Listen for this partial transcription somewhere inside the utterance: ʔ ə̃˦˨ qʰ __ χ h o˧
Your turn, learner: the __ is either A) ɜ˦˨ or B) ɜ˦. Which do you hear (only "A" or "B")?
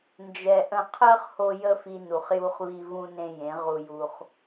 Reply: B